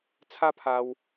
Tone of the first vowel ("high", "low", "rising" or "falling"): high